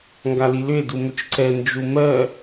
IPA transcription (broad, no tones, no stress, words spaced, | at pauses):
ŋɡalilʏe̯ dumʏt͡ʃǀɛ nd͡ʒumɜ